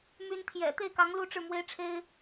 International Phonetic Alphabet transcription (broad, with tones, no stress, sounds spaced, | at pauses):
m y˧˥ n t̪ʰ j ɛ̰˨˩ t̪ e˥˩ ɪ̯ k ɑ˧˥ ŋ l u˥˧ ʈ͡ʂ ɻ̩˥˩ m w e˥ ɪ̯ ʈ͡ʂʰ e˥ ɪ̯